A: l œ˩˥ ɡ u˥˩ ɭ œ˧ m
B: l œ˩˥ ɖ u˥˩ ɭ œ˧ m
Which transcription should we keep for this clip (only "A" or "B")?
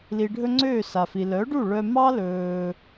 B